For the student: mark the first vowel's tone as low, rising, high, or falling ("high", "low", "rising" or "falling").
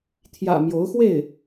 low